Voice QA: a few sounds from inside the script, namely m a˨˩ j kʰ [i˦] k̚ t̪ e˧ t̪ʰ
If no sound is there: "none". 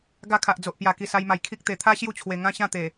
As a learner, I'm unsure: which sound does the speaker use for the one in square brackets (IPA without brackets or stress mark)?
i˦